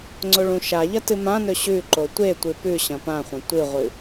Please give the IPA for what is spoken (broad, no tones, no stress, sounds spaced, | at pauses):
ŋ͡ǀ o ɭ ũ ʃ a ʎ ɐ t ɨ m ã n ɵ ɕ ʉ ǃ o tʷ e tʷ ɨ p ʉ ɕ ɐ̃ p ã χʷ ɐ̃ tʷ ɨ ʁʷ ɨ